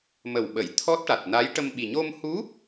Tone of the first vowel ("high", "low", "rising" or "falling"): low